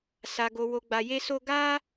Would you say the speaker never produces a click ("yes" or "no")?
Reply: yes